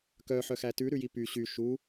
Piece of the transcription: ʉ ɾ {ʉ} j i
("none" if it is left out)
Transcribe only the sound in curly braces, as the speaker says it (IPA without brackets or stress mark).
ʉ